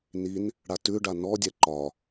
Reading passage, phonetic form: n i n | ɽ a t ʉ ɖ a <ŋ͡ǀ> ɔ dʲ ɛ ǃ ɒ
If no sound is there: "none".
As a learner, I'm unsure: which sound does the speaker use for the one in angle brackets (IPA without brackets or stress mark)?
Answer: n